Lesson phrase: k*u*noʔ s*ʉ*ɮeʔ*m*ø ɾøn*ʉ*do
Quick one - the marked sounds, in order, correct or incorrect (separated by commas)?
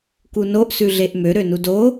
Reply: correct, correct, correct, incorrect